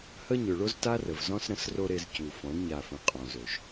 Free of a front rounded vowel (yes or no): no